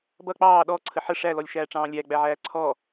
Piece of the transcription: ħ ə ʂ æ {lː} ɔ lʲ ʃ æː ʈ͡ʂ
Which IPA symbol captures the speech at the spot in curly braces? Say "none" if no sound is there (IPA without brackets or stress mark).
l